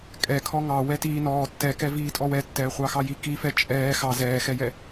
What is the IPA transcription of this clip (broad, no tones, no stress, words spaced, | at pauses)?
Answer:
kʼɛkʰɔ ŋɑ wɛtiː nɔː tːɛkɛ viːtʼɔwɛtːɛː χʷɑxɑji kifɛ t͡ʃʼɛː xɑ zɛːxɛjɛ